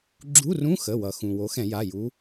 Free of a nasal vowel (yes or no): no